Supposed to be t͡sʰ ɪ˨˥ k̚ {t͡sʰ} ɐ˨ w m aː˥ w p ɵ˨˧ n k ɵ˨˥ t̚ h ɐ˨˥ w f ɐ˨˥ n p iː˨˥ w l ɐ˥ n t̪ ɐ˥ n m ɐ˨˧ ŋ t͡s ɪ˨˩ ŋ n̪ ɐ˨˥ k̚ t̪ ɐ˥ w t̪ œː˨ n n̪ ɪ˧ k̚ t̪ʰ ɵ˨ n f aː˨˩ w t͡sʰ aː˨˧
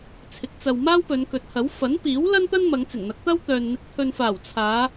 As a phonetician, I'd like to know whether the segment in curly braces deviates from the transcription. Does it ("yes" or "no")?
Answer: yes